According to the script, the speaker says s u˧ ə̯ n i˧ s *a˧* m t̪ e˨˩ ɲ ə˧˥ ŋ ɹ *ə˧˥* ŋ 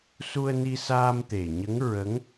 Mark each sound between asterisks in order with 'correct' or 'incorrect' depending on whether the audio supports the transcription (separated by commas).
incorrect, correct